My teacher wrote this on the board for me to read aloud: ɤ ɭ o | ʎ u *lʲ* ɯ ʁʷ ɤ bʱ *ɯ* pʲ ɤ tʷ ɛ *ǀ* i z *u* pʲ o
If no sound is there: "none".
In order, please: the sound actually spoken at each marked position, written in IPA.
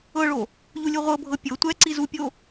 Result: lʲ, ɤ, ǀ, u

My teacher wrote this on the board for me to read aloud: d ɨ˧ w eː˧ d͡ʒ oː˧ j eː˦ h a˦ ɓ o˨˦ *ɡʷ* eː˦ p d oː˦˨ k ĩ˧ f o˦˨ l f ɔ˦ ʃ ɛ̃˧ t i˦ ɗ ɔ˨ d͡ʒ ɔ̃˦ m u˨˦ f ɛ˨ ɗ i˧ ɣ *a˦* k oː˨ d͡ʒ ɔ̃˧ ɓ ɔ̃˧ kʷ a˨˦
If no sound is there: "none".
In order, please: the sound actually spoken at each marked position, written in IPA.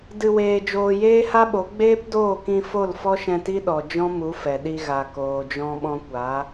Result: ɡ͡b, a˨

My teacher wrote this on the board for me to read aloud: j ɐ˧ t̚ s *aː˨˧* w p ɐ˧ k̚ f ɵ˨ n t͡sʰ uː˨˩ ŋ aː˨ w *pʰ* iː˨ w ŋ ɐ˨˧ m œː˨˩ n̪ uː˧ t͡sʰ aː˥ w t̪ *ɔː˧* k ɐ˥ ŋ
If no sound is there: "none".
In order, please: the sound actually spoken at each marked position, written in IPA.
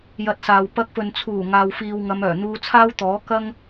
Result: aː˨, f, ɔː˨˥

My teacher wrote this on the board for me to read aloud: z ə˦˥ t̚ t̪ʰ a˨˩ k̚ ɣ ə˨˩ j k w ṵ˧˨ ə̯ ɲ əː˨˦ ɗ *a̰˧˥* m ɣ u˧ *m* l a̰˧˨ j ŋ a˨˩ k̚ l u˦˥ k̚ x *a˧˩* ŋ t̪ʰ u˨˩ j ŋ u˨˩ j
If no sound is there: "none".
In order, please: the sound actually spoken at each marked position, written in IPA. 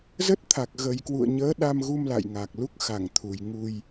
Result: a˧, m, a˧˩

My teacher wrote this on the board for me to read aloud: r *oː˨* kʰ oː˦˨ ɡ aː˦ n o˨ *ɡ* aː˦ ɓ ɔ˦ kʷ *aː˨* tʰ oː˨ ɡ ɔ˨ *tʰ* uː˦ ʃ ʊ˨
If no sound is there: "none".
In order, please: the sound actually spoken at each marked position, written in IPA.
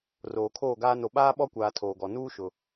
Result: oː˨, ɓ, aː˨, n

